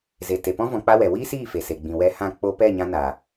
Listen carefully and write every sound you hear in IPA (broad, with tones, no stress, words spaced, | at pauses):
ze˨te˨pɔ̃˦ vɔ̃˧k͡pa˦wɛ˨ wiː˦siː˦˨ fe˨se˨ɡ͡bĩ˨wɛ˧ hã˦˨ k͡po˧pɛ˦˨ ɲã˧na˨